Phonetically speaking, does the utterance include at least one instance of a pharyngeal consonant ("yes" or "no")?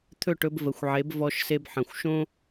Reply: yes